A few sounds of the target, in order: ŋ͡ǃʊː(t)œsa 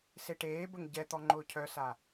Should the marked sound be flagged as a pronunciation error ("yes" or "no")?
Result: yes